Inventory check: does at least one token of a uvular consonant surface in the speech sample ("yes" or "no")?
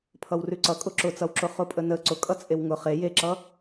yes